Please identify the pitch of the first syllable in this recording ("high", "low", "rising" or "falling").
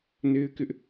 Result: high